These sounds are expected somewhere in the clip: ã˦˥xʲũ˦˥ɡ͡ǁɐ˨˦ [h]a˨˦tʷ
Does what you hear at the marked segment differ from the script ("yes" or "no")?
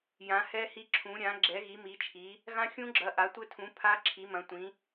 yes